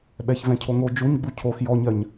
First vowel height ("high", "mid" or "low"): mid